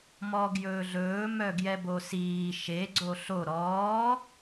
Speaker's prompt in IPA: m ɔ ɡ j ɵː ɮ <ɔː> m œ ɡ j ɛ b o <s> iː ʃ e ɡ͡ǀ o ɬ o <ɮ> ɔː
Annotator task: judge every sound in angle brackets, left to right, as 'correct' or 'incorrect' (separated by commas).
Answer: incorrect, correct, incorrect